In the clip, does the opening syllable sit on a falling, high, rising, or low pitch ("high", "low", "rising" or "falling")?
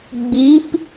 rising